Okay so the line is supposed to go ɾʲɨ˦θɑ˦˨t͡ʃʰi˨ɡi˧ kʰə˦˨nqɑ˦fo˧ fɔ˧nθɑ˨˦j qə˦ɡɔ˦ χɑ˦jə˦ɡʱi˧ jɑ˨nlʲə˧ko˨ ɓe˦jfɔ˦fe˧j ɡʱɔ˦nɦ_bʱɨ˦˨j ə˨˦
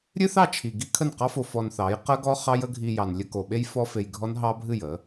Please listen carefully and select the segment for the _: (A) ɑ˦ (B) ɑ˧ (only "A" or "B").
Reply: A